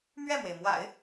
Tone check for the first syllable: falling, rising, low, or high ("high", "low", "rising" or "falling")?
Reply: falling